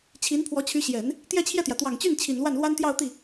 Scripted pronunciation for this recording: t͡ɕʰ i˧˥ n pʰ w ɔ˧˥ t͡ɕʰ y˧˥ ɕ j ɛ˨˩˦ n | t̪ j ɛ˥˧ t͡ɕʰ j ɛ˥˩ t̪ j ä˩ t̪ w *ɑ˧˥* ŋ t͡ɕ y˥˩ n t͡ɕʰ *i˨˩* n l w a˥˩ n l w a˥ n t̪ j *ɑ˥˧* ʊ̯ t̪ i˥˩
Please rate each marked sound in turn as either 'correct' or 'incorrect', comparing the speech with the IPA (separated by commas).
incorrect, correct, correct